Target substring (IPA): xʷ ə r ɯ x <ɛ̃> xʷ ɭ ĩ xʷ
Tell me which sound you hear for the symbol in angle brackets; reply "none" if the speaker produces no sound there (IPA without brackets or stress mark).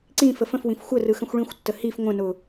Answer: ə̃